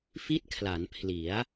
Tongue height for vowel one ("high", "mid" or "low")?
high